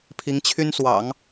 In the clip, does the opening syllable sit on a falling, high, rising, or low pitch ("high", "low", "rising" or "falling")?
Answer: rising